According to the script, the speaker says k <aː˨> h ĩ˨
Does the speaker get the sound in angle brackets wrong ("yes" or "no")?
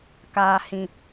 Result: no